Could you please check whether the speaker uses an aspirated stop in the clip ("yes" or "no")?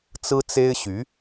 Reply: no